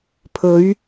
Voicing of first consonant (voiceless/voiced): voiceless